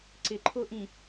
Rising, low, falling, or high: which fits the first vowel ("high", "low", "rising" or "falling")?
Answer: low